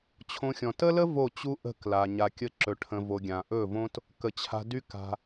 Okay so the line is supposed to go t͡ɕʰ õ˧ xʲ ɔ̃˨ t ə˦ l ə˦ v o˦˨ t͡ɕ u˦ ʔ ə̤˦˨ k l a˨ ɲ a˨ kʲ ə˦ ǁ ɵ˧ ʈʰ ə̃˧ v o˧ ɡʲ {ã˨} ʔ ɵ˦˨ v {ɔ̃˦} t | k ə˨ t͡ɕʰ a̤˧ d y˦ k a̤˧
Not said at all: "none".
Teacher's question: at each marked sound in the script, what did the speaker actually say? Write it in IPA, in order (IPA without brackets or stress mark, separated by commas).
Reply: ã˨, õ˦